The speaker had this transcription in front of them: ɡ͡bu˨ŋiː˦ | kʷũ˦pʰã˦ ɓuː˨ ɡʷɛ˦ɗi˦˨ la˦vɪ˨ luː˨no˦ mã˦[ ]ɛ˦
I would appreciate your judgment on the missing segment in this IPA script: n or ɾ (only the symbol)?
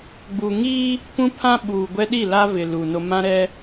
ɾ